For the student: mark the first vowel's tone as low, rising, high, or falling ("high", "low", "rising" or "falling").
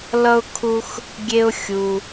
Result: high